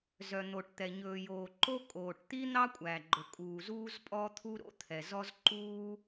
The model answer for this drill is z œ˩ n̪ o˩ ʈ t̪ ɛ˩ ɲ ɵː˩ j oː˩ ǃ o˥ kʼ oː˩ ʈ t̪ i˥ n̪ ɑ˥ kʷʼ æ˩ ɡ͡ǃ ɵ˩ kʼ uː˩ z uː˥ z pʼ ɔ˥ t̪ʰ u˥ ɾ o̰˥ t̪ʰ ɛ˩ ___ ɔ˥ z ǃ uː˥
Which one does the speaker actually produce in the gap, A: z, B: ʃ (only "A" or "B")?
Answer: A